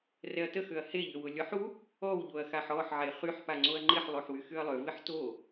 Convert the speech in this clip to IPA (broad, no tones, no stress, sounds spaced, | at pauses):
r ɛ ɐ̯ t ə x ø ɐ̯ h e ʎ ø w ʊ lʲ ɔ ħ u | ɔ w ʎ o ɐ̯ x a ħ ɔ ħ ʕ e χ y ħ p a ŋ͡ǀ o ɐ̯ ŋ͡ǃ ɪ ħ lˠ o ħ w y x y ɐ̯ lˠ ø v ɪ ħ t o